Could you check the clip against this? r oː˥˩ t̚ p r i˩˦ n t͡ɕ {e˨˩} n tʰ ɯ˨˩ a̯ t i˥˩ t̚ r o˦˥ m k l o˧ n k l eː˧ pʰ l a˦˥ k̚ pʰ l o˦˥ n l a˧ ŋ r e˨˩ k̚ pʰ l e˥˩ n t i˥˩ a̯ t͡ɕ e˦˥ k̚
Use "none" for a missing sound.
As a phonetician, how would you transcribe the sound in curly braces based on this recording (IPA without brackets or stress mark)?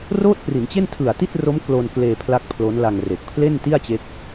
e˥˩